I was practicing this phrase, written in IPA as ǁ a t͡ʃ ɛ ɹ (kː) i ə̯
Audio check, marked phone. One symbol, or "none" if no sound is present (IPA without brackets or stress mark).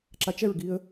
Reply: ɡ